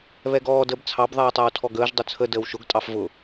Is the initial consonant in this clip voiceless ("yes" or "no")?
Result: no